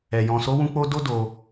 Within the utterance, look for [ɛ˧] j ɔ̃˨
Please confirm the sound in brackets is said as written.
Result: no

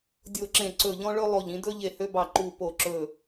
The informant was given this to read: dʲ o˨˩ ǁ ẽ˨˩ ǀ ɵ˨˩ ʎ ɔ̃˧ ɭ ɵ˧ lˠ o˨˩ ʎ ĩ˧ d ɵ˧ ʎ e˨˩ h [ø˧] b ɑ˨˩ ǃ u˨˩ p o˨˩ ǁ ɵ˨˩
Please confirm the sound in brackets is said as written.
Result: yes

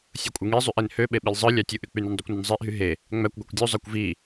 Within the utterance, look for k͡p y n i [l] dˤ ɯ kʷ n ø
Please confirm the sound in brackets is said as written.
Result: no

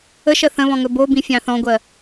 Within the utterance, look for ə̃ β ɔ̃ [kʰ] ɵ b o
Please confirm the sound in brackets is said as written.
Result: no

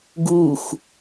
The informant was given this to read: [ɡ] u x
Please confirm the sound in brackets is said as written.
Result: yes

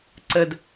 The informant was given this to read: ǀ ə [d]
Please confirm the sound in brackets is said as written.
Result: yes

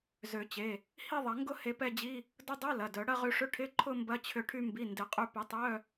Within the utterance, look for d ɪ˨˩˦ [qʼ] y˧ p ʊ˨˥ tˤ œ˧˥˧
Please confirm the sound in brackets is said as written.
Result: yes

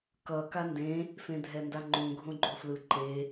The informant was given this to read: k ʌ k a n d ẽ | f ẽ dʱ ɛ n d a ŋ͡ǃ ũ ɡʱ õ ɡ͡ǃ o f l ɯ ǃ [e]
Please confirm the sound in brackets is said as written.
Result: yes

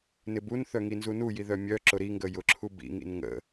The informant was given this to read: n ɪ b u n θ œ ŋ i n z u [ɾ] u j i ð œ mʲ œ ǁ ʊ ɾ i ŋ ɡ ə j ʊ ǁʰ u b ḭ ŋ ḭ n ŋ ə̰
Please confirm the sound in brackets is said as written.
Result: no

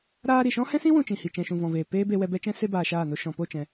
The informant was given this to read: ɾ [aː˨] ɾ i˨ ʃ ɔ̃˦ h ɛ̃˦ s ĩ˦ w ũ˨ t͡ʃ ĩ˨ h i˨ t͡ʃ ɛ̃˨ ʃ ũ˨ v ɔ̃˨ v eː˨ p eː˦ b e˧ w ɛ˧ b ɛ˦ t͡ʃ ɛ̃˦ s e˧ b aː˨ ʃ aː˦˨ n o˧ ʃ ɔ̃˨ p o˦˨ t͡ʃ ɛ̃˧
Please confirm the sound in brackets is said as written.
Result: no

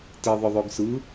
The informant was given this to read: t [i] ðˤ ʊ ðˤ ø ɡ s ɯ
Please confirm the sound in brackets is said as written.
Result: yes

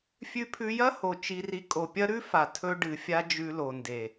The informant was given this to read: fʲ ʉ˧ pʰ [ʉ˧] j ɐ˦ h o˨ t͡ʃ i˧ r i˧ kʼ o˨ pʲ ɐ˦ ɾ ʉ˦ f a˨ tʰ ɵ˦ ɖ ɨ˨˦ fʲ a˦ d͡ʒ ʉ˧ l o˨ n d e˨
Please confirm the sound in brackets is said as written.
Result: yes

